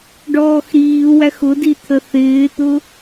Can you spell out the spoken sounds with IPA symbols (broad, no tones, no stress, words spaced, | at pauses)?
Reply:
ɖɔːxɾiːwæx ʊdi t̪ʰəθɪːt̪ʊ